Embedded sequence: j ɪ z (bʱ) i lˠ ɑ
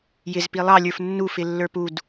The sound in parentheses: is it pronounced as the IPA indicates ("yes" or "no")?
no